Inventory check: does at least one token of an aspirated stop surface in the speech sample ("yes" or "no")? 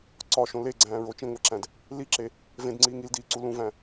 no